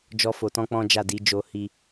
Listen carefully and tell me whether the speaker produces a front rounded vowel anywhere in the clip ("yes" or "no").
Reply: no